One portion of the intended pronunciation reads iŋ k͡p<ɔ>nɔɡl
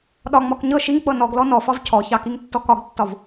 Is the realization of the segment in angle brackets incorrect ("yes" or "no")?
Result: yes